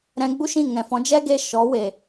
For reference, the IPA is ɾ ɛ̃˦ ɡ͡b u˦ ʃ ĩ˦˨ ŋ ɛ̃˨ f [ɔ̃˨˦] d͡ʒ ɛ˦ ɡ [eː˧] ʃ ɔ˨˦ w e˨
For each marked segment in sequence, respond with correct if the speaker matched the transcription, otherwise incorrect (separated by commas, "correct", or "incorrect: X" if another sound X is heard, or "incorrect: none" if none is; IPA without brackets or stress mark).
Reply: correct, incorrect: e˧